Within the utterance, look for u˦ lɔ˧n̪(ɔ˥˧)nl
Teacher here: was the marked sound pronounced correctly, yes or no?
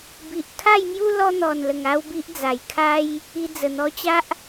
no